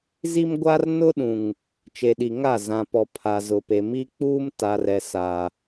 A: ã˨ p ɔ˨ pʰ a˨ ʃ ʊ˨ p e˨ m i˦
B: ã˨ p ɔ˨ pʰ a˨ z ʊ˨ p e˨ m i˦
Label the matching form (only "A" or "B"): B